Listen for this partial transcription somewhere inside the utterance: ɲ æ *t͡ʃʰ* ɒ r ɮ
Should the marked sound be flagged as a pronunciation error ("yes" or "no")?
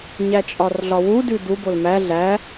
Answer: yes